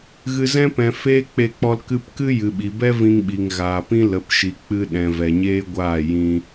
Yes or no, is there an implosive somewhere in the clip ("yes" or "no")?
yes